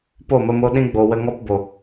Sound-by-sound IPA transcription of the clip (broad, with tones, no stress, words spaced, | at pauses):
po˦˨mə˧mo˧ ɗĩ˧ɡ͡bo˨ wə˧ŋɔ˦pbo˨